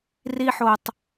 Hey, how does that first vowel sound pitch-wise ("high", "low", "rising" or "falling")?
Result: high